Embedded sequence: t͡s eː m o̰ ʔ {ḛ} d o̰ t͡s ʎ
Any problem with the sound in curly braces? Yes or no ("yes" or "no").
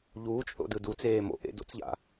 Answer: no